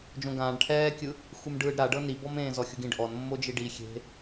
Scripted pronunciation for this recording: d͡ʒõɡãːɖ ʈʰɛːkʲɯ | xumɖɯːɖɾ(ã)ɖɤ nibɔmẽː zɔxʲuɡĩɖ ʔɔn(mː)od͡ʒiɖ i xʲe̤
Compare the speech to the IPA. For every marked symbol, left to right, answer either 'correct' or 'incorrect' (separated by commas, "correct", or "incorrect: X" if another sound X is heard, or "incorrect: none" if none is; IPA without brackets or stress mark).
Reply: incorrect: a, correct